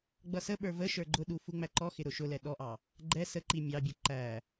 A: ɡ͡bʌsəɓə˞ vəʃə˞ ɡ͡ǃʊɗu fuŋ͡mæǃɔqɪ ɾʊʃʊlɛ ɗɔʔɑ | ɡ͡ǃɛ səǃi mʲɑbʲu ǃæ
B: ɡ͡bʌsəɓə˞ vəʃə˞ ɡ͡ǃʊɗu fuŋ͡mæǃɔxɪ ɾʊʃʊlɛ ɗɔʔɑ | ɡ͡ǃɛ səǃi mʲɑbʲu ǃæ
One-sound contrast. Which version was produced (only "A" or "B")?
B